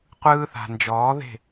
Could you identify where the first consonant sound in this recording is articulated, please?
uvular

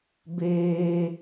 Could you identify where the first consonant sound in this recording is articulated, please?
labial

